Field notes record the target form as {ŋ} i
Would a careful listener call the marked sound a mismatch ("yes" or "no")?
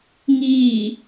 no